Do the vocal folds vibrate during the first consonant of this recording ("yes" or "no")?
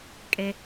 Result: no